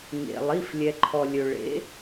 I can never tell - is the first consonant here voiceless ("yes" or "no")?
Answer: no